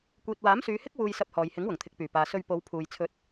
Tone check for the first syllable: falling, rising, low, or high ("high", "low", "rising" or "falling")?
low